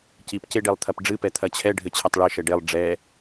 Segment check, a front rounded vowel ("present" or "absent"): absent